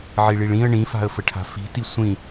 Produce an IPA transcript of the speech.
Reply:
ʕiɭiɭĩə̯ ɳĩfa̤ə̯fəʈʰa̤ fi̤ti sʷĩ

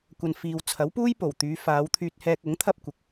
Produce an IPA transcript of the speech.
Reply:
kʷɐ˨nfiː˨wt͡sʰɐ˨˥w puː˥j po˨˩wt̪yː˨˧ faː˨˧wt̪ʰyː˧t̚ hɛː˧k̚ʊ˨˥ŋ t̪ʰɐ˥p̚kʷɪ˨˥k̚

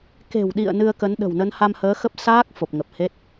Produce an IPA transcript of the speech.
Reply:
ke̤˨˩wɗḭ˧˨ə̯ nɨ˧ə̯kə˨˦nɗə̤˨˩w nə˨˦nha˧mhəː˨˦xə˦˥p̚ saː˦˥k̚ fo˨˩p̚ŋə˨˩p̚he˦˥t̚

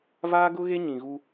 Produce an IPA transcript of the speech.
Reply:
vaː˦ɡʊ˦ɣe˦ ɲĩ˨ɣu˦

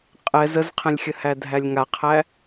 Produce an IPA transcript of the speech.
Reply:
qʼɛz əzqʰɛ̃lʲxʲəhæ dʱælʲŋaqʰæ

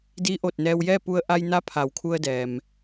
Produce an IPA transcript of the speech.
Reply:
diː˧˥ʔo˧˩t̚nɛː˧w jɛː˥˨pu˧ə̯ ʔa˧jna˧˥ pʰa˩˧wkʰu˧ə̯dɛː˩m

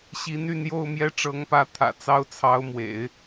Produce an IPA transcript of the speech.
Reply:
ɕi˧˥n y˥˧njo˥˧ʊ̯ mjɛ˥˩ʈ͡ʂɤ˧˥ŋpä˧˥ t̪ʰä̰˨˩ t͡sɑ˥ʊ̯t͡sʰɑ˧˥ʊ̯mwḛ˨˩˦ɪ̯

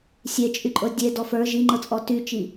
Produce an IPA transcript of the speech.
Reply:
sʲet͡ʃʼyǃʼɤ dʲedɔ fə˞ ʒiŋ͡ǃɤt͡sʼɔ tyt͡ʃi

